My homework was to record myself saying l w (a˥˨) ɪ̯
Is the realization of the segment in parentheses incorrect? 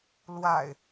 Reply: yes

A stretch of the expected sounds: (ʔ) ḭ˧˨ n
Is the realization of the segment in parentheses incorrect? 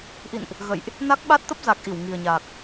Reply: no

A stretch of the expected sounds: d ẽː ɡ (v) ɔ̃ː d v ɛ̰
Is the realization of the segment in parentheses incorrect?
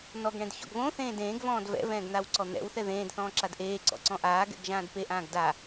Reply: no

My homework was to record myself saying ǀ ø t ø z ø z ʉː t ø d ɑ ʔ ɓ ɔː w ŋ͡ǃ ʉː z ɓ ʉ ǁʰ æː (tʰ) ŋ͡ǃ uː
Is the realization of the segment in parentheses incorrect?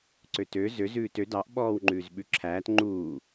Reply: yes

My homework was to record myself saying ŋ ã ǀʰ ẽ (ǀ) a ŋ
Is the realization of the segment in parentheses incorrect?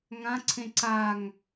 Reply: no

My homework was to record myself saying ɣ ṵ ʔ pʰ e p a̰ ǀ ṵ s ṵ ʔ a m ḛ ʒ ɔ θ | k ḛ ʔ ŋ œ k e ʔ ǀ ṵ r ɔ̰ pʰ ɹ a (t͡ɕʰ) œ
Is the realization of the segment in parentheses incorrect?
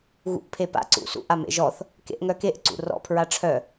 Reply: yes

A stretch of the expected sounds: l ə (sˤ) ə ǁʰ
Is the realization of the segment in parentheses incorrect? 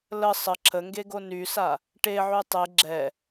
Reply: no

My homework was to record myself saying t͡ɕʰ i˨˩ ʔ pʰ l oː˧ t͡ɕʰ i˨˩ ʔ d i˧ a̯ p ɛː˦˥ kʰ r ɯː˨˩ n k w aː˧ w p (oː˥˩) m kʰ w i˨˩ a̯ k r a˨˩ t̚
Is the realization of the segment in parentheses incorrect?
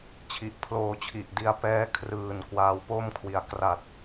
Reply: yes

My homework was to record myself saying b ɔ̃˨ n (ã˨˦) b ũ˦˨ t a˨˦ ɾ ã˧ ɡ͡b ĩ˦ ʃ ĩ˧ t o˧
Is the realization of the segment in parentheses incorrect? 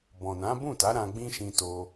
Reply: no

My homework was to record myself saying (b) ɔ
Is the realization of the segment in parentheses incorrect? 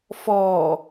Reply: yes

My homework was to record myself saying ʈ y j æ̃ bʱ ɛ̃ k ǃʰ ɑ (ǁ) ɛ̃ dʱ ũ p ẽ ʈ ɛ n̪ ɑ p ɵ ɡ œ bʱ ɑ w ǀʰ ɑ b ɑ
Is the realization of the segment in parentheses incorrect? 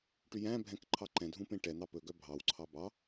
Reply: yes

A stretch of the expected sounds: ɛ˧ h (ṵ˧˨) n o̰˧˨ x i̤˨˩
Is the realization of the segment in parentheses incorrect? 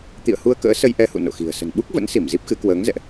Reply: no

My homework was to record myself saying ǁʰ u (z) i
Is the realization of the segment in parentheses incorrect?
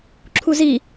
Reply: no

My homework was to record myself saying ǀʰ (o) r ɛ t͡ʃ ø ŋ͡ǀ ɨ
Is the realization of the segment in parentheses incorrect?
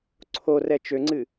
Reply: no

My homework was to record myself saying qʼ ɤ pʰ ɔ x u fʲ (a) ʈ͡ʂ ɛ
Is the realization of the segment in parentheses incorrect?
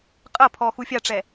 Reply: no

